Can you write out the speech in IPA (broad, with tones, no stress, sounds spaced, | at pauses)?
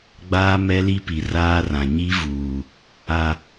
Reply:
ɡ͡b aː˦ m ɛ˦ l i˦ p i˨ r aː˦ r ã˨ ɲ i˦ v uː˨ | a˨